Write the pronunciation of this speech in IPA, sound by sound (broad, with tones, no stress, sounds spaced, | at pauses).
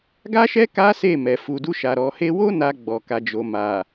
ɡ a˦ ʃ ɛ˦ k a˦ s e˦˨ m ɛ˨ f u˨ d u˧ ʃ a˨ ɾ ɔ˨ h e˧ w o˦ n a˧ ɡ͡b ɔ˨ k a˨ d͡ʒ o˨ m a˨